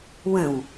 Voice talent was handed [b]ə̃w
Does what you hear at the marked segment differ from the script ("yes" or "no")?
yes